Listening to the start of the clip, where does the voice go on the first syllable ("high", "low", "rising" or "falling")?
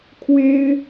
high